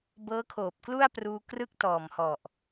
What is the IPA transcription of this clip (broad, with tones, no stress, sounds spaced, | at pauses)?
b ɤː˦˥ kʰ oː˨˩ p̚ k l u˥˩ a̯ p r uː˧ k r ɯ˥˩ k̚ t ɔː˨˩ m h ɔ˨˩ ʔ